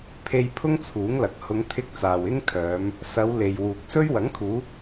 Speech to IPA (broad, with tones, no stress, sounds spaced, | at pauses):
pʰ e˧ j pʰ ʊ˥ ŋ t͡sʰ uː˨˥ ŋ l ɐ˨ k̚ h ʊ˨˧ ŋ t̪ʰ ɪ˧ k̚ t͡s aː˨ w ɪ˥ ŋ kʰ œː˨˧ m | s ɐ˨˧ w l e˨ j w uː˨ k̚ s ɵ˥ ɥ w ɐ˨˥ ŋ kʰ uː˨˧